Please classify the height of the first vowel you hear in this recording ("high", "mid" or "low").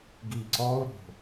high